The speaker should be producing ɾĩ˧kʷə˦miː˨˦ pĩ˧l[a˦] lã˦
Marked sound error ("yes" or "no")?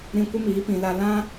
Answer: no